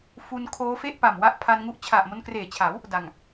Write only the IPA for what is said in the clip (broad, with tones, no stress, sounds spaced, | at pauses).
f u˧ n kʰ oː˦˥ f e˥˩ ʔ p a˨˩ m w a˥˩ ʔ pʰ a˧ n ŋ u˦˥ ʔ t͡ɕʰ a˨˩ ʔ m o˧ n k r eː˨˩ t͡ɕʰ a˩˦ w | d a˨˩ ŋ